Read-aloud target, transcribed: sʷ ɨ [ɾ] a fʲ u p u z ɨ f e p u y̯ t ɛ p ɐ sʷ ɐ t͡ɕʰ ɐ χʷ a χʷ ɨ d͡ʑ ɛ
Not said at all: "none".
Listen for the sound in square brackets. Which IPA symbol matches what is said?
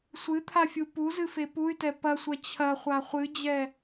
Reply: t̪ʰ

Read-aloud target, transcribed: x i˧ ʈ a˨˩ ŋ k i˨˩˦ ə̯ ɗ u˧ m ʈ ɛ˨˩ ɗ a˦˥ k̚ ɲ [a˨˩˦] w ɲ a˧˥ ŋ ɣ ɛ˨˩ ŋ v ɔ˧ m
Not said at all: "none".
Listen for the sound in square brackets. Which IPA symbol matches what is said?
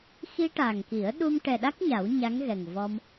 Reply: a˨˩˦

